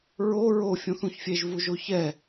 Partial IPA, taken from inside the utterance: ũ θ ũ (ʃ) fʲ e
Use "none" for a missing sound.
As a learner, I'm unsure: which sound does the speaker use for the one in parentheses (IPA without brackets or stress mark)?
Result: ç